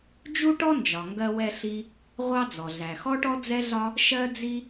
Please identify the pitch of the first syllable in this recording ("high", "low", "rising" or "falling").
high